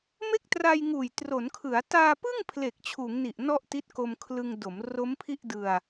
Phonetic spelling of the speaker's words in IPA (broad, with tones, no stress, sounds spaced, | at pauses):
m e˥˩ k̚ t r a˧ j ŋ uː˨˩ j t r o˩˦ n kʰ ɯ˩˦ a̯ t aː˧ p ɯ˥˩ ŋ pʰ l e˨˩ k̚ t͡ɕʰ uː˩˦ ŋ n i˨˩ ʔ n ɔ˥˩ ʔ t i˦˥ t̚ k o˧ m kʰ l ɯ˧ ŋ d o˩˦ m r o˦˥ m pʰ i˥˩ ʔ d ɯ˧ a̯